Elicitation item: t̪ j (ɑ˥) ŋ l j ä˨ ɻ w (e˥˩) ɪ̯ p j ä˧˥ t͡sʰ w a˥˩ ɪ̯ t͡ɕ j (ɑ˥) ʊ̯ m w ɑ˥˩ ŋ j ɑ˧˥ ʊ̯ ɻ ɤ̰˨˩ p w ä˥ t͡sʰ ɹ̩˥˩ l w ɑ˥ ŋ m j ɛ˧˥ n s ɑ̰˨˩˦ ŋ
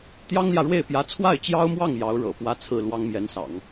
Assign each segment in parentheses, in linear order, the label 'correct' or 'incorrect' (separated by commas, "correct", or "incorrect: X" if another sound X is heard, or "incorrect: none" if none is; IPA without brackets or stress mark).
correct, correct, correct